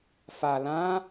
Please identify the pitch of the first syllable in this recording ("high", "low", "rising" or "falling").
low